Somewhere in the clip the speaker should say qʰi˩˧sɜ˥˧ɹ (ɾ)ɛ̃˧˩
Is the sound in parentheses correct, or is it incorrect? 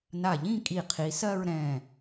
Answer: correct